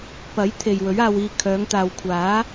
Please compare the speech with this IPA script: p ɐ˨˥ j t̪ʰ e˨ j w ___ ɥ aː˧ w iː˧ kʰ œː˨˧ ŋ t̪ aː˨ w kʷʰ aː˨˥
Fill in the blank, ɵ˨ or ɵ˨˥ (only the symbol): ɵ˨˥